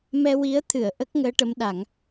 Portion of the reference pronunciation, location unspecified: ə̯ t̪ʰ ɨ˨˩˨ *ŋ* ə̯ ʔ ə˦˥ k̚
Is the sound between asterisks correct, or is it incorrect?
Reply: incorrect